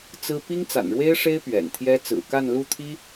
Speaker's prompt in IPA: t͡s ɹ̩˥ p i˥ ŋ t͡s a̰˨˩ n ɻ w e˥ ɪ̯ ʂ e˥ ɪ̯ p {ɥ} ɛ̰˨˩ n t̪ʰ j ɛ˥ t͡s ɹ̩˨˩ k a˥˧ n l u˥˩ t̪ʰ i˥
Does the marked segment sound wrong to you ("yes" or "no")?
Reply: no